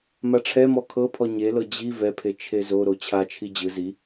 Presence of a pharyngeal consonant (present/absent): absent